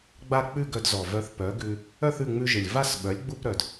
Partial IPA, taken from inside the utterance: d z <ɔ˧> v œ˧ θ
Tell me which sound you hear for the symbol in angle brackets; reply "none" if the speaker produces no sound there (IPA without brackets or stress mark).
ɔ˨˩